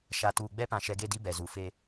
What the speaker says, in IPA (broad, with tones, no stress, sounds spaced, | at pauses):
ʃ a˨ t uː˨ ɡ͡b ɛ˦ p ã˨ ʃ ɛ˨ ɡ e˦˨ d i˦ b ɛ˨ z u˨ f e˦